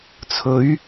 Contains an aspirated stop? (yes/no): yes